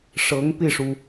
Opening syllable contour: rising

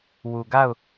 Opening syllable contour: low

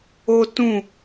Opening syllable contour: high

